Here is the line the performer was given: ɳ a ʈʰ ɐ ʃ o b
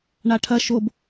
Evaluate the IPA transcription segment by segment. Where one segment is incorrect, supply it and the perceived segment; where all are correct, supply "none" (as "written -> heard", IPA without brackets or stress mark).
none